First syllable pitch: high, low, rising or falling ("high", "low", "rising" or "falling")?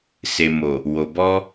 low